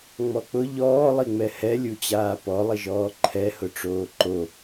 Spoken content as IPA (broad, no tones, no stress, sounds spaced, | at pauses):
ŋ͡m ɔ k͡p ʊ ʎ ɔː lˠ i ŋ͡m ɛ h ɛ lʲ u t͡ɕ aː p ɔ lˠ ɪ ʒ ɔː ǃʰ ɛ h ʊ ʈ͡ʂ oː ǃ o